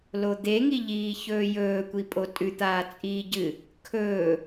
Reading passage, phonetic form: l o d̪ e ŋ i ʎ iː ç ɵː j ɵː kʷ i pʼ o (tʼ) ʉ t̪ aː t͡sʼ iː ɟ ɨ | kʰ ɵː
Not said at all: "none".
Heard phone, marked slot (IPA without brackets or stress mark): tʼ